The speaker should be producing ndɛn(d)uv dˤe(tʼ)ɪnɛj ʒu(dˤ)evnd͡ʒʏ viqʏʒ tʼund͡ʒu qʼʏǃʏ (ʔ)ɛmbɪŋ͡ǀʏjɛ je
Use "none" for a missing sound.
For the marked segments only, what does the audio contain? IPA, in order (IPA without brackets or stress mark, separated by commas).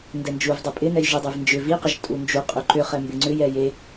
d͡ʒ, pʼ, dˤ, χ